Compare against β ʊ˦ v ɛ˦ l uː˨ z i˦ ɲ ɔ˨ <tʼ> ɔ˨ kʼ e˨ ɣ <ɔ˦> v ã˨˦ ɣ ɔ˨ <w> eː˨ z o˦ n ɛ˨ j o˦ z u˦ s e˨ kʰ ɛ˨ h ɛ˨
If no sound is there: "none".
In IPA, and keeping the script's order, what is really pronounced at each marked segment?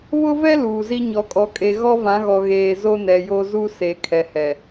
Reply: kʼ, ɔ˦, ɣ

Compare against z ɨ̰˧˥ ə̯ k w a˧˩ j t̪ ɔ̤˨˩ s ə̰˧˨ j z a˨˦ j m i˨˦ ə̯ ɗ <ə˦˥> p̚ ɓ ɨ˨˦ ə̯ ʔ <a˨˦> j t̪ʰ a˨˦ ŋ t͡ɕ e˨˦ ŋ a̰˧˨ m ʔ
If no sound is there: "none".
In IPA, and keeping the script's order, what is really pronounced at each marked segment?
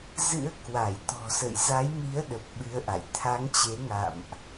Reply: ə˨˩, a̰˧˨

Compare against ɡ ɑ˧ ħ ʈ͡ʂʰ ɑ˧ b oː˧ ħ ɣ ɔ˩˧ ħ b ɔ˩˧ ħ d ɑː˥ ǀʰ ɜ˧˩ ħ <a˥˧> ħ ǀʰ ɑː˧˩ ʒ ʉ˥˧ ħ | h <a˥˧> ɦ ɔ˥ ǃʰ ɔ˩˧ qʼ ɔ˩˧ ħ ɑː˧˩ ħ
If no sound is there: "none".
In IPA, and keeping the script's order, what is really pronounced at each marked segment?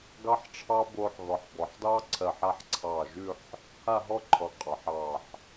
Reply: a˥˧, a˥˧

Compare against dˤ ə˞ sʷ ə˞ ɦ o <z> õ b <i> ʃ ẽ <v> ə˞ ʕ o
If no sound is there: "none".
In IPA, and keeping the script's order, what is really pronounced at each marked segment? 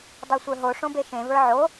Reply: ʂ, e, v

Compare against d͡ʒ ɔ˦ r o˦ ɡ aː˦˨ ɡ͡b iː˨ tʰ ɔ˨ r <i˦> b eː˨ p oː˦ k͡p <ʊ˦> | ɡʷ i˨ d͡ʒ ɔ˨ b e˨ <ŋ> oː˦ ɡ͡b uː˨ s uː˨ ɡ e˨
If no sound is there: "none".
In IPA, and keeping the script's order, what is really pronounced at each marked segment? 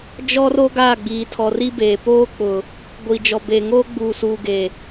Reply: i˦, ʊ˨, ŋ

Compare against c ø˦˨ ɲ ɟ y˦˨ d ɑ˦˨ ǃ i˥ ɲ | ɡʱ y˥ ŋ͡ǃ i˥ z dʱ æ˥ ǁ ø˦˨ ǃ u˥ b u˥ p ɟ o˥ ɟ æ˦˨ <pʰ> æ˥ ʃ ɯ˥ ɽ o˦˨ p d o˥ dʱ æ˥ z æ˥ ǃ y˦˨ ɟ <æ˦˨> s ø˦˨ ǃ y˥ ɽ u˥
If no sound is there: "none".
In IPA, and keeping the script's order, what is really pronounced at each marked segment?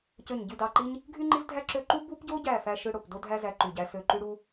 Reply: f, æ˥

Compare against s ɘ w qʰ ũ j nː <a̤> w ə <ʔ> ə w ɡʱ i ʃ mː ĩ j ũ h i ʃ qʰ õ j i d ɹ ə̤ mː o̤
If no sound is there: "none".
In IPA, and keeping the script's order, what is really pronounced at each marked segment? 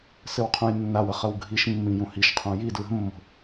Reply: a, χ

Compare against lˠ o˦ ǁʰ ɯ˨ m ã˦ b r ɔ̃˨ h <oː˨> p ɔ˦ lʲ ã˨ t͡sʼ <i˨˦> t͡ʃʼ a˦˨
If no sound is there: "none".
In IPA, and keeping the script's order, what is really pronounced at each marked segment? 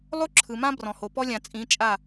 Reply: o˨, ĩ˨˦

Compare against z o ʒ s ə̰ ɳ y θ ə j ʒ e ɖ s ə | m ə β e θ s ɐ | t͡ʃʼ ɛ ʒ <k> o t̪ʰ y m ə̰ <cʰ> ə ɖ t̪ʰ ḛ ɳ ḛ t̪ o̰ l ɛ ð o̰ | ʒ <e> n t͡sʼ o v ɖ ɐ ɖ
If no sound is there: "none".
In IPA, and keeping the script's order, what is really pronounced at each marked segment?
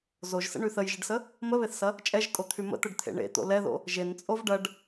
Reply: kʼ, t̪, e

